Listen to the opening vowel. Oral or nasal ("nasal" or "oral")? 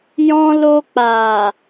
nasal